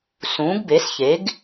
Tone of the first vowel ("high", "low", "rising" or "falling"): rising